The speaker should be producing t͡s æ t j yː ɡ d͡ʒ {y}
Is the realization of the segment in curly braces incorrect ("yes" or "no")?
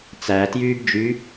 no